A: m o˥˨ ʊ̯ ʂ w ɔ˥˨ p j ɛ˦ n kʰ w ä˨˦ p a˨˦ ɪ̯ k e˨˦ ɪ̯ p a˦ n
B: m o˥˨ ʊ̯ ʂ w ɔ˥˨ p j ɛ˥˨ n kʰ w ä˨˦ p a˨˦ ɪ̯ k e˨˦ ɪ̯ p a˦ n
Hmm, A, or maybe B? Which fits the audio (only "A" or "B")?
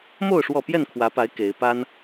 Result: B